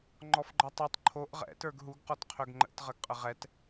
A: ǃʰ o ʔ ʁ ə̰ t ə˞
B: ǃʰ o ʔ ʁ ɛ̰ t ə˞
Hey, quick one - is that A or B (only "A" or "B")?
B